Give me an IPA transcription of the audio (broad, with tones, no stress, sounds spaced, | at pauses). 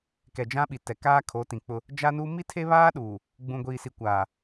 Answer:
k ɛ˨ d͡ʒ ã˦ ɓ i˨ t ɛ˨ k aː˦ kʰ o˨˦ t ĩ˨ k͡p ʊ˦ | d͡ʒ a˦ n u˦ m i˦ tʰ e˦ β aː˦ ɗ uː˨ | ɡ͡b ũ˨ ɡʷ iː˨ s i˨ kʷ aː˨